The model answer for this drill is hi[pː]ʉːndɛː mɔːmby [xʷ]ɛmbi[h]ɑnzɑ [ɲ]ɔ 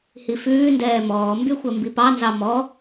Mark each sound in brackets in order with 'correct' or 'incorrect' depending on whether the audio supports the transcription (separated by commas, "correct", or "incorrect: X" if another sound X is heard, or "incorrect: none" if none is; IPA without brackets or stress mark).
incorrect: f, correct, incorrect: p, incorrect: m